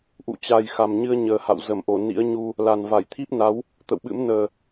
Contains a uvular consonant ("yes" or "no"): no